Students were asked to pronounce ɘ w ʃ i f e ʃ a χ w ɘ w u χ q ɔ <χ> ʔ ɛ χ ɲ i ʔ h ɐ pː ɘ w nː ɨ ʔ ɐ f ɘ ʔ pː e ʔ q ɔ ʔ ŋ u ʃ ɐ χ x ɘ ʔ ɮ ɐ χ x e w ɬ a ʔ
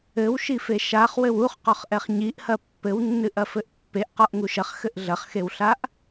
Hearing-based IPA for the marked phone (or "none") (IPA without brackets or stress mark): χ